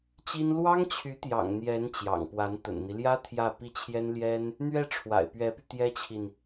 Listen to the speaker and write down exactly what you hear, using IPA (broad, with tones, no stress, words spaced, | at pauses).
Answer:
t͡ɕi˥n lwɑ˥ŋt͡ɕʰy˧˥t̪jɑ̰˨˩ŋ n̪jɛ˧˥n t͡ɕjɑ̰˨˩ŋpwa˧˥n t̪ə̰˨˩nn̪i˦ljä˥ t̪ʰjä˥˧ pi˥˩t͡ɕʰjɛ˥n ljɛ˥n | n̪ɥɛ˥˩ ʈ͡ʂʰwa̰˨˩ɪ̯pɥɛ˧˥py˧ t̪jɛ˥t͡ɕʰi˨n